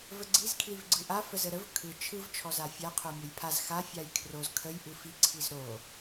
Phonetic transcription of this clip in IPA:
v ə ɡ͡ǀ i z kʰ l i v ɡ͡ǀ ɯ ʔ a f ə z ə ɾ ə v kʰ ɯ t͡ʃʰ ɯ v t͡ʃʰ ɔ z a fʲ a qʰ o mʲ o j pʰ a z x a fʲ a j kʰ r o z kʰ ə j ʔ ɯ f i ǀʰ i z ɾ o

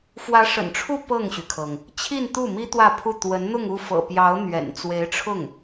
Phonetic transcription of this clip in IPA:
f w ä˧˥ ʂ ə̰˨˩ n ʈ͡ʂʰ u˥˧ p ɤ˥˩ ŋ ɕ y˩ kʰ ɤ˩ ŋ | t͡ɕʰ i˥˧ n t̪ u˥˩ m i˥ t̪ w ä˥˧ pʰ u˥˩ t̪ w ə˧˥ n n̪ ʊ˥˧ ŋ u˥˩ f ɤ̰˨˩ p j ɑ˧˥ ʊ̯ n̪ ɥ ɛ̰˨˩ n t͡s w e˧˥ ɪ̯ ʈ͡ʂʰ ʊ˥˩ ŋ

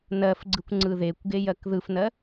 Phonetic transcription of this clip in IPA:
n ɜ f ɡ͡ǀ ɯ kʷ ŋ͡ǀ ɯ ð e kʷ ɡ e j ɜ k ð ɯ f n ɜ

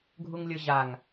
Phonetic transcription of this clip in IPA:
ɡʱ u ŋ lʲ ɤ ʑ a ŋ

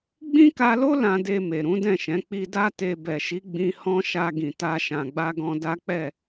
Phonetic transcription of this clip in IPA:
ɡ͡b ĩ˦ k a˧ l o˦ l ã˧ d e˧ m e˨ ɾ ũ˨˦ d ɛ̃˦˨ ʃ ɛ̃˨˦ k͡p i˧ d a˦ t e˧ b ɛ˨ ʃ i˨˦ ɡ͡b ĩ˧ h ɔ̃˦ ʃ a˧ ɡ ĩ˨ t a˧ ʃ ã˨ ɡ͡b a˧ ɡ ɔ̃˧ d a˦ k͡p ɛ˦˨

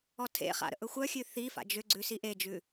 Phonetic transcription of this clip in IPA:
ɔ tʰ ḛ χ a̰ ɾ ə̰ ʔ ɵ xʷ œ xʲ ʉ θ i f a̰ d͡ʒ ʏ ɡ͡ǀ ʉ s i ʔ e d͡ʒ ʉ

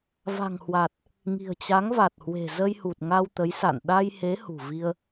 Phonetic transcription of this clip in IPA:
v a̤˨˩ ŋ h w a˨˩ t̚ | ŋ i̤˨˩ ə̯ t͡ɕ a˨˦ ŋ v a˨˩ t̚ h w e̤˨˩ z ə˧ j h u˨˩ t̚ ŋ a˧ w t̪ ə˨˦ j s a̰˧˨ n ɗ a˧ j h e˨˦ h ṳ˨˩ v i˧ ə̯

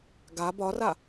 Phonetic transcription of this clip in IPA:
ɡ a b ɒ r a

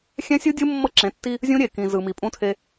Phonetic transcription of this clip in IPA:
xʲ ɛ̃˦ sʲ ɯ˦ dʲ ɯ˦ mː ɤ˦ ǁ ẽ˨˦ tː i˦ | zʲ ũ˦ ɾʲ e˨ k ĩ˨ z ɯ˨ m i˨ pʼ ũ˦ tʰ e˦

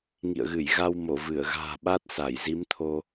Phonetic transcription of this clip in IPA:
ŋ ḭ˧˨ ə̯ ɣ ɨ˧˩ j ɣ a˧ w m o˧˩ v ɨ˧˩ ə̯ ɣ a̤ː˨˩ ɓ a˦˥ t̚ s a˧˩ j z i˨˦ m t̪ʰ o˧

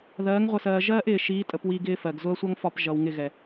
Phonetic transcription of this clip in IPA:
ð ɜː˨˦ ŋ ʁʷ ə˨ s ɜː˨ ʒ ɜː˦ ʔ ɪː˨ ʃ iː˨˦ tʼ ə˨ p w i˨ ɡ ɪː˦ f ɜ˨ ɡ z ʊ˦ ɐ̯ sʷ ʌ˦ ŋ f ɒ˦˨ p ʒ ʌ˨ w ŋ ɪ˦˨ ɣ ɛ˨

